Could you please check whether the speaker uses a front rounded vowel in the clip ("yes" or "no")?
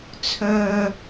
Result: yes